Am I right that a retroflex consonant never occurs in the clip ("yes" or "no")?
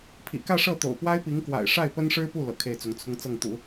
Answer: no